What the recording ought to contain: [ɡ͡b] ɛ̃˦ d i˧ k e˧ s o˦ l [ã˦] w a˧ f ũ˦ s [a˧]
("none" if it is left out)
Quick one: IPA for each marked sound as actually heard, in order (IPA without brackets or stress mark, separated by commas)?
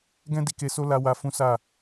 ɡ, a˦, a˦˨